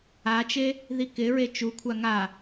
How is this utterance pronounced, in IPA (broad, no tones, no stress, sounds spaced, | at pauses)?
a t͡ʃ e | ð i k ɪ ɹ e t͡ʃ u kʷʰ a ŋ a